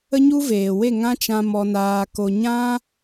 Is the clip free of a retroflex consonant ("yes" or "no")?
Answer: yes